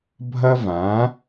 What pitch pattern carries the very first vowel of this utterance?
high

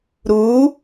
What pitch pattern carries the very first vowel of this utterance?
rising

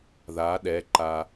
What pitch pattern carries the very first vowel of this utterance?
rising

